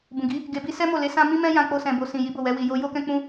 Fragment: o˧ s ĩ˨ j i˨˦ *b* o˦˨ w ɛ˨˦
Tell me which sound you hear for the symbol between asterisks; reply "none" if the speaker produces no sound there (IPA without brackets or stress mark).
b